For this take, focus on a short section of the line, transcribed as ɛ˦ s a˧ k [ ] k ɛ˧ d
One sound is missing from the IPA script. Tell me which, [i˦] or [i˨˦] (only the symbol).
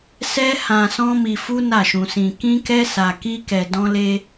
i˦